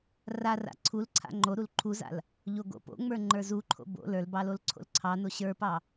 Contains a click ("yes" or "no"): yes